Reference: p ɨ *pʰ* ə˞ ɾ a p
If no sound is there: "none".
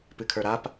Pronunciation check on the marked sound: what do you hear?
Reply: kʰ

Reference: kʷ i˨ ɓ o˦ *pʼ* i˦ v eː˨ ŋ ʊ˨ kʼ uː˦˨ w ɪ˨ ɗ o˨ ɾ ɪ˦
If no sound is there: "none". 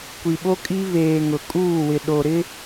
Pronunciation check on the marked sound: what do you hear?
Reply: kʼ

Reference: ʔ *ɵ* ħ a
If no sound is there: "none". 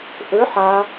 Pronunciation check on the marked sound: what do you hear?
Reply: ɵ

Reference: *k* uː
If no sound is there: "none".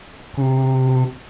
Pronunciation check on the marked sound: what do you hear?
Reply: k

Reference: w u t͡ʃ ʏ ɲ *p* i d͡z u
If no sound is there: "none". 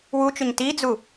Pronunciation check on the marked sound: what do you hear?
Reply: t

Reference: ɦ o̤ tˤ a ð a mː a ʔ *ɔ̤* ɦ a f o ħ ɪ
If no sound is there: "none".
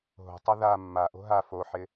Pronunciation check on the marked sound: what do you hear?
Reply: o̤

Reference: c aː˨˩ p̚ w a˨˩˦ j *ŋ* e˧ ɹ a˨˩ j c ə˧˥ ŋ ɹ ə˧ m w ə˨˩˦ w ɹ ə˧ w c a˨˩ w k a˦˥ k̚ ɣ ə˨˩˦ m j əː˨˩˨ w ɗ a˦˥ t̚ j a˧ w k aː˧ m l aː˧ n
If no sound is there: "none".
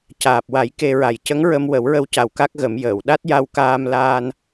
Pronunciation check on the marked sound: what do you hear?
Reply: k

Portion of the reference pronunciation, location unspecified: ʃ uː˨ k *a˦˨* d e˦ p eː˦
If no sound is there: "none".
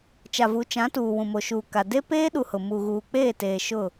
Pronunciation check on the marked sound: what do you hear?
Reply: a˨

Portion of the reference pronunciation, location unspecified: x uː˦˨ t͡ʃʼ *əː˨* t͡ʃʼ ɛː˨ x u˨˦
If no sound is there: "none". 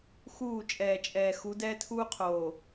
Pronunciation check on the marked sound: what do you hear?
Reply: ɛː˨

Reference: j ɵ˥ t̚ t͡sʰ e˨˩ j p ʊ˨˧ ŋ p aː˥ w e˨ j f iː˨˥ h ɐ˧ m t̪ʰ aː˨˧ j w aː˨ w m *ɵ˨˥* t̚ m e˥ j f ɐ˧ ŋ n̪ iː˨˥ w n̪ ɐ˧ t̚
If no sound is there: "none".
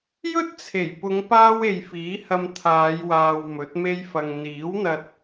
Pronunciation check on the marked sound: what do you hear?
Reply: ɵ˨˥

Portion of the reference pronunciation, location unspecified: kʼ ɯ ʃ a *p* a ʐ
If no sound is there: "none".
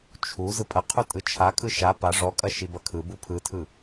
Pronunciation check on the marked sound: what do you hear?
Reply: p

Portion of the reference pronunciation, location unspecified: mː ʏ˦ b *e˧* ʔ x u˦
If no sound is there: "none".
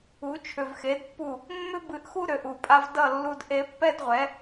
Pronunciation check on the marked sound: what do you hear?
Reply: ɨ˧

